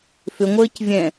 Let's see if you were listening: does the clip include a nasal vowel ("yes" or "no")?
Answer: yes